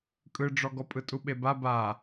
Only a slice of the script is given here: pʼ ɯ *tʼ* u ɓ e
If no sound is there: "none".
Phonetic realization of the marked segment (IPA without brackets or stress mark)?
tʼ